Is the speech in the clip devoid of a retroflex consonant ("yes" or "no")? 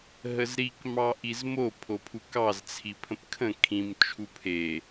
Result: yes